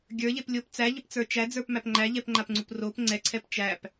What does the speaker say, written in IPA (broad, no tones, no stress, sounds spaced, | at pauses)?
ɡʲ ə˞ ʎ e p lʲ o p t͡s æ ʎ ə p t͡s ə˞ t͡ʃ æ d͡z ə˞ p m æ p ŋ͡ǃ æ ʎ ɛ p ŋ͡ǃ a p ŋ͡ǀ u p r o p ŋ͡ǀ ɛ ǀʰ ɛ p t͡ʃ æ p